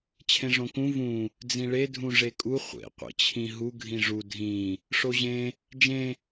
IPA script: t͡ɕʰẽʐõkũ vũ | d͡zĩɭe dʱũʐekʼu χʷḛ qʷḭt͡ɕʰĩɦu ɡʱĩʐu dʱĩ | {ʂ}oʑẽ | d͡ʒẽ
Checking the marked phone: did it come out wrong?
no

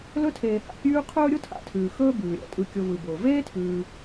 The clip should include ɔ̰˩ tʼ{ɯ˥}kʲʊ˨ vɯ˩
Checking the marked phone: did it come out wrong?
yes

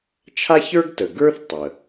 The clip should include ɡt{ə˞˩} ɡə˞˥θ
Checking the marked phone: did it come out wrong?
yes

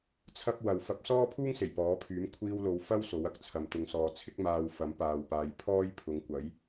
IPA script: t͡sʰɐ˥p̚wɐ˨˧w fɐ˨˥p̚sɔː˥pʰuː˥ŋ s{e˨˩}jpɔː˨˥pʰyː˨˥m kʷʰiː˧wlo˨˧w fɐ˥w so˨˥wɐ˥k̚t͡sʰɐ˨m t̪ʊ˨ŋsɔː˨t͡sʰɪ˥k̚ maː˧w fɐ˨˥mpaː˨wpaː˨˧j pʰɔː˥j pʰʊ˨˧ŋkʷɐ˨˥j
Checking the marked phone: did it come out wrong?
no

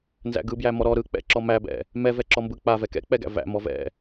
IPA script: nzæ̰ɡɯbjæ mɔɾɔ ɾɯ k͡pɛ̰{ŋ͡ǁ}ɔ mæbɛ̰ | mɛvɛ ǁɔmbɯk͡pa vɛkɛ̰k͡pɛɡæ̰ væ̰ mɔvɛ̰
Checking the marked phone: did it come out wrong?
yes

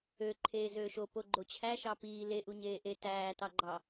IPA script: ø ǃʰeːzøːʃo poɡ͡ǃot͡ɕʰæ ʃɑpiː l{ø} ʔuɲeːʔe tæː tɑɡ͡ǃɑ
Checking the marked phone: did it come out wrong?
yes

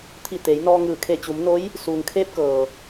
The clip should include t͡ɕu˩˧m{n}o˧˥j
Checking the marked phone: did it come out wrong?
no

